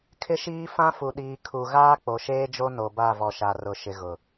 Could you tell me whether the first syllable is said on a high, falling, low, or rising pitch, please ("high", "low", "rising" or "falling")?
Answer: high